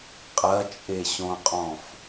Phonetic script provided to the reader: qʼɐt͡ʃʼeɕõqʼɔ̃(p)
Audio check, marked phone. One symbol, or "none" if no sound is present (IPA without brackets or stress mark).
f